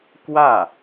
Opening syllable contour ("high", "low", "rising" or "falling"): falling